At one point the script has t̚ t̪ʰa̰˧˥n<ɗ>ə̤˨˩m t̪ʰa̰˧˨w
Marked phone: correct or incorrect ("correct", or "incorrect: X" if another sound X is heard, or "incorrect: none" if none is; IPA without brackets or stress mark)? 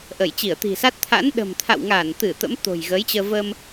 correct